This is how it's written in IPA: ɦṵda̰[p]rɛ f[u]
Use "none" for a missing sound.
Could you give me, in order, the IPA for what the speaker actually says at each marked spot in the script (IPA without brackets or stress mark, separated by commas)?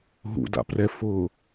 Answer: p, ʊ